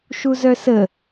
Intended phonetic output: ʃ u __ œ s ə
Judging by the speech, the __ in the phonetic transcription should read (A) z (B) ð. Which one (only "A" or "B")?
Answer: A